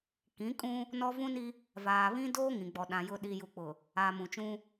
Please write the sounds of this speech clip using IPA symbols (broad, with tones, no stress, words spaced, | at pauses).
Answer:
kĩ˨˦kʼũ˦ | nɔ˦ vũ˦ni˦ | vaː˨βĩ˦doː˦ ŋĩ˨ɡ͡bɔ˨ɗã˨ jʊ˨ ɗi˨ju˨k͡pʊ˨ | aː˨mũ˨t͡ʃũ˦